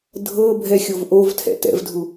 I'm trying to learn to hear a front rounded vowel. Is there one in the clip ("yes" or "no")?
no